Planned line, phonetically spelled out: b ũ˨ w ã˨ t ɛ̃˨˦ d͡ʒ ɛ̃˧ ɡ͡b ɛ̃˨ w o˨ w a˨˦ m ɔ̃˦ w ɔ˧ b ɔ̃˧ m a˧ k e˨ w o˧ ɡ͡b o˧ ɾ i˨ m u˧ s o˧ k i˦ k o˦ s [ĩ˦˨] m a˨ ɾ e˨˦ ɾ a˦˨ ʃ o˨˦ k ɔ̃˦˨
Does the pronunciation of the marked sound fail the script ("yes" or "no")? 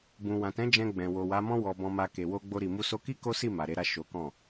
yes